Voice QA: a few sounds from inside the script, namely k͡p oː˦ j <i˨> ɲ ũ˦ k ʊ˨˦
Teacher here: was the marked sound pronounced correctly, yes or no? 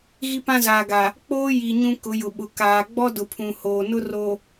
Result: yes